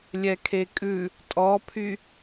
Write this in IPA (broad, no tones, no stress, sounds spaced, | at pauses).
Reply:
lʲ ɛ kʰ e kʼ ʉ | tʼ ɔ pʰ y